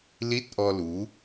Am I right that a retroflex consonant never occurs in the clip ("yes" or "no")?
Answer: yes